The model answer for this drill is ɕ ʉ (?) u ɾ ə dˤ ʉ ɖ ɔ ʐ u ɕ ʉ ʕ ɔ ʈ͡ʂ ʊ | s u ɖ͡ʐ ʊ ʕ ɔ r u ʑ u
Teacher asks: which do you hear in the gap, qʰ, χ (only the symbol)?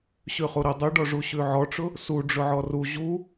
χ